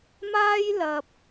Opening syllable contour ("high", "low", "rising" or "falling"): high